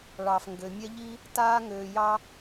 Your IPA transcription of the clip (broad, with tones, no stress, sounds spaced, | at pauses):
ɭ ɑː˨ f ŋ ɡ ø˨ mʲ ɛ˦ ʎ i˦ | t aː˧ ŋ øː˨ j ɑ˦